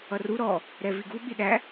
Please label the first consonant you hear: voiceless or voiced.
voiced